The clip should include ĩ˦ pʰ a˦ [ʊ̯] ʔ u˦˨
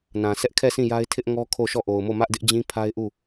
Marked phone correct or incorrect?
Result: incorrect